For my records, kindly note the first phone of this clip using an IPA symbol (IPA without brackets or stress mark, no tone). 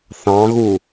θ